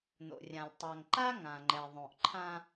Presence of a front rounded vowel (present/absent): absent